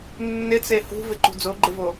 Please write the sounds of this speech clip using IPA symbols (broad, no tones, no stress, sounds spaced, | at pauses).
nː ɪ t͡s e h ṳ v ɪ ǃ ṳ d͡z o ɡ͡ǃ ɪ v o